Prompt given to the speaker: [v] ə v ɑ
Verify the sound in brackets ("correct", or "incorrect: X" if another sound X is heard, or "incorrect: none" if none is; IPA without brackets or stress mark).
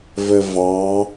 correct